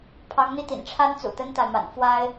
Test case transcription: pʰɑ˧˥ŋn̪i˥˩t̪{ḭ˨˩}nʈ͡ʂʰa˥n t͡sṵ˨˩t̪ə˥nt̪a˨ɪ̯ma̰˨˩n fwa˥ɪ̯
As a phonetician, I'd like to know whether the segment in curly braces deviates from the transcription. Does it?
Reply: no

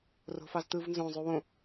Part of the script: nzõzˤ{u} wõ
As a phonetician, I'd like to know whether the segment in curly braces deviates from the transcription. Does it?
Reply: no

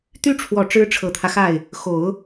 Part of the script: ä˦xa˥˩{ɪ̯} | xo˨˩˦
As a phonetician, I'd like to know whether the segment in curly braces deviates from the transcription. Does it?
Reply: no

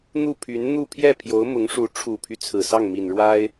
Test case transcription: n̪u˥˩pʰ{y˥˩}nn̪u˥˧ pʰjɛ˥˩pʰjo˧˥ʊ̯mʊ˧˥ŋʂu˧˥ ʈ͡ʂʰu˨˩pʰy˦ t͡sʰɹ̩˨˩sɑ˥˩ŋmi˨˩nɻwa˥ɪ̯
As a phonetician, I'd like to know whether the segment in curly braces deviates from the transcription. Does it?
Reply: yes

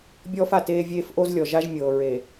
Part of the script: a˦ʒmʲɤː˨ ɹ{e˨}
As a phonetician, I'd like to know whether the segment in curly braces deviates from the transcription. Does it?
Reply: no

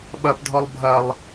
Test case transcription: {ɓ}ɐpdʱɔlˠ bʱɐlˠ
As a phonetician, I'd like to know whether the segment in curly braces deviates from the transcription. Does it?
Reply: no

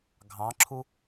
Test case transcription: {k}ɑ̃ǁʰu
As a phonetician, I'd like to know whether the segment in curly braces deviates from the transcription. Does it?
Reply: yes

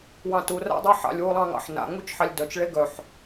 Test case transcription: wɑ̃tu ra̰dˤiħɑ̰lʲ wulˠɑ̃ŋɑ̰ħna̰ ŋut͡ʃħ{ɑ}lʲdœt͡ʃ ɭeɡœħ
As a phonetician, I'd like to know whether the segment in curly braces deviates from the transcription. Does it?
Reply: no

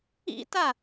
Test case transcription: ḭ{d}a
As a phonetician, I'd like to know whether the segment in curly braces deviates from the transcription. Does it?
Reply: yes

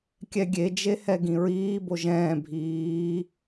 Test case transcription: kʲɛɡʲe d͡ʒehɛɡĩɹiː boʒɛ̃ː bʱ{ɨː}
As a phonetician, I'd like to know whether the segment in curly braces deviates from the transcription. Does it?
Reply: yes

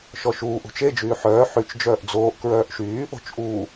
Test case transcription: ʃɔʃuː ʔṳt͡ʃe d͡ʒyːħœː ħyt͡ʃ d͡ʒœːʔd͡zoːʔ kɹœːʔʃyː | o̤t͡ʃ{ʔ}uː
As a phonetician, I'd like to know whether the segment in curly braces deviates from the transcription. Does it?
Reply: no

